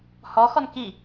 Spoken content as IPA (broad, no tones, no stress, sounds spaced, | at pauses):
h ɔ x ɔ n k i